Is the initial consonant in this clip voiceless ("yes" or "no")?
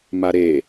no